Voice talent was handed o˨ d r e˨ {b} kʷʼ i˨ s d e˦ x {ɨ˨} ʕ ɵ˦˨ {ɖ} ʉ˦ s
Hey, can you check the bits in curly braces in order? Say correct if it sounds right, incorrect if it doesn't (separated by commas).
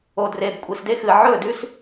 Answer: correct, correct, incorrect